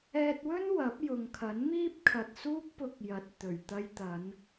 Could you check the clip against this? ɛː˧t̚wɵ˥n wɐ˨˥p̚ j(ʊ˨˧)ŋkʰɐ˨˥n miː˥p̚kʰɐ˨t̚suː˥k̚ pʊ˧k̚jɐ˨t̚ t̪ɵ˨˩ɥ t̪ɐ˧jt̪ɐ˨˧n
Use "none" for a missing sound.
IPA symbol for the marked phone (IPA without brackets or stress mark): ʊ˨